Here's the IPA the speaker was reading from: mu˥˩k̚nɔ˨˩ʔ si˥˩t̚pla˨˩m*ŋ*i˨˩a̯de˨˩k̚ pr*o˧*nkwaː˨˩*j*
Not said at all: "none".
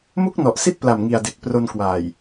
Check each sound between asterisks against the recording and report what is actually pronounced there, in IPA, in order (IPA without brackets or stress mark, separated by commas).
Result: ŋ, o˧, j